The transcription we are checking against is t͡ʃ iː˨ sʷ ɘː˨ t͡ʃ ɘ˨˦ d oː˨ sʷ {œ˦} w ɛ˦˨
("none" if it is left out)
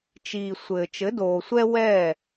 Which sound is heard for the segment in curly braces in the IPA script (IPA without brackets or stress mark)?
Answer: ɛ˦